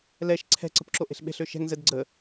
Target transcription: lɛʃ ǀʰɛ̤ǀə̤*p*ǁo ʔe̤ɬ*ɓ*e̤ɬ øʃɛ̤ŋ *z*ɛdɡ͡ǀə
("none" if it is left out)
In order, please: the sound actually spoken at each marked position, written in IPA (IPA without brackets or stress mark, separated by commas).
p, ɓ, z